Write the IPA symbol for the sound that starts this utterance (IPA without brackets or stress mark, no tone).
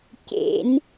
c